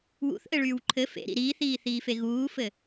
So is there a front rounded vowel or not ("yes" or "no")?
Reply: yes